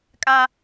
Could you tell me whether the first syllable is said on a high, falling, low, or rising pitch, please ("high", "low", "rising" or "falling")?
high